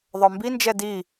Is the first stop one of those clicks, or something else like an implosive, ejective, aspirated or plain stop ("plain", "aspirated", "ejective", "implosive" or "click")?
plain